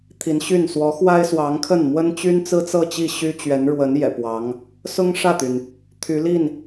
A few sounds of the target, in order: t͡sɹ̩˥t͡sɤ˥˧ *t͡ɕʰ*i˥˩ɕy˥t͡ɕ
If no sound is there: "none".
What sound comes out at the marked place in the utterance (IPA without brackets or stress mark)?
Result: t͡ɕ